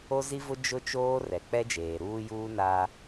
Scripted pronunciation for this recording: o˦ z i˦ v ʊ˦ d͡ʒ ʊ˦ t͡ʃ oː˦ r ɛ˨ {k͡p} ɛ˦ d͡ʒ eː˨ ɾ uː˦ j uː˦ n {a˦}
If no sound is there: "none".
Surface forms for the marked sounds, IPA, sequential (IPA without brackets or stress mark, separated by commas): k͡p, a˦